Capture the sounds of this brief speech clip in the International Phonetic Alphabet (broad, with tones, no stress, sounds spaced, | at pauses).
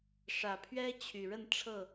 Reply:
ʂ ä˨˩ pʰ ɥ ɛ˦ t͡ɕʰ y˨˩ ɻ ə˥˨ n ʈ͡ʂʰ ɤ˥˨